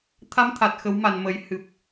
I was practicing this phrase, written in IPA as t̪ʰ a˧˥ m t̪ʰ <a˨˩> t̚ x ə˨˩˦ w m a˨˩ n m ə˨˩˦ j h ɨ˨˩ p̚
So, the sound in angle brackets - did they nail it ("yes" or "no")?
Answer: yes